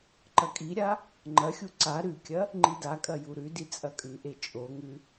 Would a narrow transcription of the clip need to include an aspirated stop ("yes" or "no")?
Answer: no